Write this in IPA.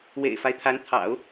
wḛ˨˩ɪ̯fa˦ɪ̯t̪ʰa˧˥n t̪ʰɑ̰˨˩˦ʊ̯

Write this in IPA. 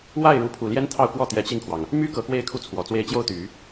wa˥˩ɪ̯ ɻu˧˥pʰu˨˩ljɛ˥n t̪ʰɑ˥˧ʊ̯kwɔ˥˩ t̪jɛ˧˥t͡ɕi˥˩ŋkʰwɑ˩ŋ | my˥ kɤ˧˥kwe˥˧ɪ̯kʰu˥˩ t͡sʰwɔ˨˩t͡swe˥˧ɪ̯ t͡ɕjo˥˩ʊ̯t̪y˨˩˦

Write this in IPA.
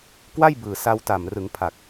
kwa˥˩jbɯː˨˩ sa˧wta˨˩m rɯ˩˦ŋpʰa˨˩k̚

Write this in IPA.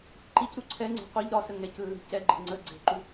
ǃicɾu ǀʰɛŋ͡ǀe̤ qʷɛʎ ɾɒsə ŋɛclːe̤ cɛɡ͡ǃe̤ ŋ͡ǀə ɡ͡ǀe̤ǃu

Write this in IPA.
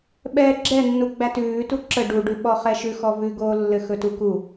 ɓɛːɡ͡ǁɛnːu ɡ͡bætʉːtu ǁə ɖuɖʉ ɓɔχɛʃʉxɔ vʉɡoːlːɘ xɵtuku

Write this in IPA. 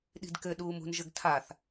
ɗi̤dkɘ ɗuːmṳnʒɘɡtʰaθ

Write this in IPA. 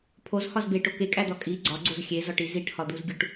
pʰozhɒz beʈo kekʼæd̪ɒ kʼi ɡ͡ǀɒɡ͡ǀoz xʲezɒʈi ziʈhɒd̪uzɡʲuʈ

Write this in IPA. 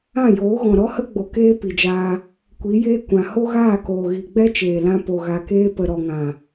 ã˦˨joː˨˦ɣɔ̃˨ ɾɔ˦hə˦ɡ͡bo˨ keː˦pi˨d͡ʒaː˧ | kʷi˨˦jeː˦kʷã˨ ho˦ɣaː˦˨koː˨ ɣi˨ɡ͡bɛ˦t͡ʃeː˨lã˧ po˨ɣa˨keː˧ pə˨ɾɔ˨ŋã˨

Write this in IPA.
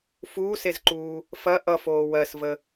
fuːsezǃuː | fɐ ʔʌfoː wɜsvə

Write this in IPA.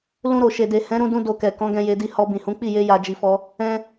lũ˧ɾo˨ʃe˨de˨ hɛ̃˨˦ɾũ˧dũ˧ do˧kɛ˨ kɔ̃˨˦ɡɛ̃˧je˧ di˧hɔ˧ bĩ˨hũ˨˦ k͡pi˦˨je˧ ja˨d͡ʒi˨fɔ˧ | ɛ̃˧

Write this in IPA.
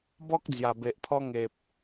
bɔ˦k̚ d͡zja˨˩be˨ʔpʰɔ˦ ŋe˨p̚

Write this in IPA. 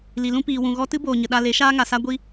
li˨ lũ˦piː˨wũ˨ɣɔ˦ tɨ˦boː˨ɲə˨ ɗa˧ le˨˦ʃaː˦ŋa˨sa˦ ɡʷi˦

